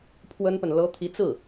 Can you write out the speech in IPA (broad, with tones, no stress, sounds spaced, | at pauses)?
pʰ w ə˥ n p ə˨ n l ɤ˥ t̪ʰ i˧˥ t͡s ɹ̩˥˩